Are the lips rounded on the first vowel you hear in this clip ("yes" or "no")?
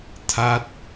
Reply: no